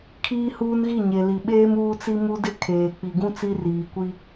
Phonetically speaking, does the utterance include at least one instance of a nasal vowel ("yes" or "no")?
yes